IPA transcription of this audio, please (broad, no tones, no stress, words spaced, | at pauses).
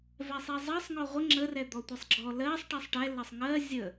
vɛsˤizˤɜsˤ ŋɔʁʷə ŋ͡ǁərɛ d̪ɔtʷisˤɡ͡ǁɔ lɜsˤ ʈisˤʈɛ lɜsˤŋɜ zʲə